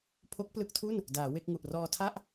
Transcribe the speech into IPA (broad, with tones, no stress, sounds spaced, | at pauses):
pʰ o˦˥ k̚ p l ɯ˦˥ k̚ tʰ u˥˩ n | d aː˩˦ w e˥˩ k̚ ŋ u˨˩ ʔ r ɔː˧ tʰ a˥˩ ʔ